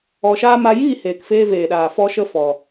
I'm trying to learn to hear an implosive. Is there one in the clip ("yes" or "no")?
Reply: yes